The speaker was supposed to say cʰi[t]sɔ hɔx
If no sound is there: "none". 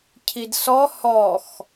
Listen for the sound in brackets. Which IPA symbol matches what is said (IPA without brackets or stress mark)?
d